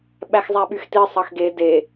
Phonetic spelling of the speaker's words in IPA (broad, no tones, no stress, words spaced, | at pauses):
ɓæxzˤæɓyxti sˤɑxɡe de